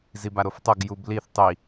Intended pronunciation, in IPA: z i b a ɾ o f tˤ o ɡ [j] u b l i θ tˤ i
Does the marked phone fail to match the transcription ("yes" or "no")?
no